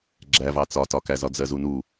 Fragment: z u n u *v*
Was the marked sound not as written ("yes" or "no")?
yes